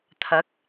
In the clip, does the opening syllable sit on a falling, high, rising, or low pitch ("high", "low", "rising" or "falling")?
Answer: rising